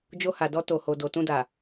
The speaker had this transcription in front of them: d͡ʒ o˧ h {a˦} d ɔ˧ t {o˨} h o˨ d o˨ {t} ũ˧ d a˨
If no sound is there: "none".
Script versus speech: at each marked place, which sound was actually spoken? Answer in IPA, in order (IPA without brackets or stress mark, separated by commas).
a˨, o˨, t